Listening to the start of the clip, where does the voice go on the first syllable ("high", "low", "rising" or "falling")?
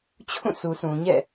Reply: falling